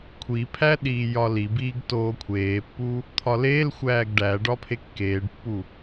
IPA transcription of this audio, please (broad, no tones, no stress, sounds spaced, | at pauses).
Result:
kʷʰ i pʰ æ ɗ iː j ɒ l i b iː ɡ t oː kʷʰ eː pː u | t̪ʰ ɒ l eː l xʷ æː ɡ ɖ æ ɖ ɒ pʰ e kː eː ɖ pː u